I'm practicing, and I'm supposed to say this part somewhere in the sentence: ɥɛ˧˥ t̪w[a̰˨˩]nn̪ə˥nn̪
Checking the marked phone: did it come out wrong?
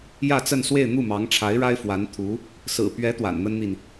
no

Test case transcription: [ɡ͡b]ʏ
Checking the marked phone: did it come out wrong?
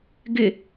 yes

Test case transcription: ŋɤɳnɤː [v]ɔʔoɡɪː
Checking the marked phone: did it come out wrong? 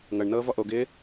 no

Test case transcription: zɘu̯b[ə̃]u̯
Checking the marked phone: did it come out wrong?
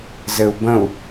no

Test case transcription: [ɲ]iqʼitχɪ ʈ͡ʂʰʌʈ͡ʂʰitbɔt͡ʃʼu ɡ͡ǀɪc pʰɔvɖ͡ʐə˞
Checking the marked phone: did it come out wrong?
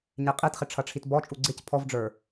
no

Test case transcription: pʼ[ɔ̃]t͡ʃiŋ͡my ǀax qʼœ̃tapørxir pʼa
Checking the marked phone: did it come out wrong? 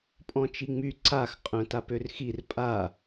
no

